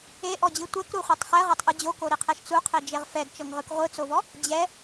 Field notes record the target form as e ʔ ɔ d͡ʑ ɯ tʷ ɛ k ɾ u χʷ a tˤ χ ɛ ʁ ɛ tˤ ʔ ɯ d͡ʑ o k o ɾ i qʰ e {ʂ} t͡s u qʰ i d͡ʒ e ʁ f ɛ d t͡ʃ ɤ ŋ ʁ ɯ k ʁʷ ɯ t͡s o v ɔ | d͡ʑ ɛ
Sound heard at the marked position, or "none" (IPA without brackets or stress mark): ʃ